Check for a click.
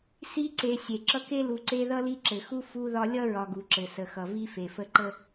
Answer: present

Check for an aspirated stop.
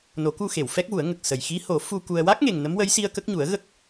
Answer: absent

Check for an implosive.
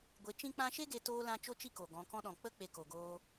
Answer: present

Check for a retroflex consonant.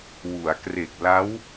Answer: absent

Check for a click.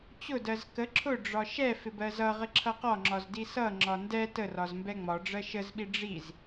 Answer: present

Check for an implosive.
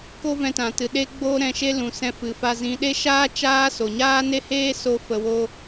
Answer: present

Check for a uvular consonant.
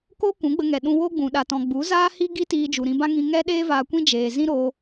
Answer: absent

